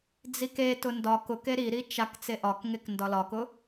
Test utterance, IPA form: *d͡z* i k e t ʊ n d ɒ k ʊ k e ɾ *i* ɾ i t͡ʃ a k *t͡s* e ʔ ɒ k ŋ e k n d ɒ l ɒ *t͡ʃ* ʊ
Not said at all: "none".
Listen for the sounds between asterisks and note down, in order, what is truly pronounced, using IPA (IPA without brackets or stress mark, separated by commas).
d͡z, i, t͡s, k